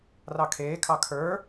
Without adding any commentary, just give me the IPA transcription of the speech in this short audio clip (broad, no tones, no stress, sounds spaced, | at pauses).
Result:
r ɑ kʰ eː kʰ ɑ kʰ ə˞